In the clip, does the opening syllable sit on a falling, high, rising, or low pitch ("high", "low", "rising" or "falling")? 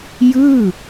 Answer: falling